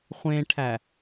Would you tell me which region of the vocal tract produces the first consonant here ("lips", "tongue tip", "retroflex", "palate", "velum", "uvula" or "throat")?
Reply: uvula